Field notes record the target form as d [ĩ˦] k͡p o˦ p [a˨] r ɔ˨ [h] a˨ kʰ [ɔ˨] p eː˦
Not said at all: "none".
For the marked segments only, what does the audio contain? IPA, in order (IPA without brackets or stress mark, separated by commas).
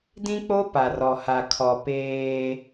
ĩ˦, a˨, h, ɔ˨